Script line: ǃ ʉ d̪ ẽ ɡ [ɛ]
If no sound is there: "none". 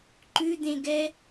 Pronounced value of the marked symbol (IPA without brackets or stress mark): ɛ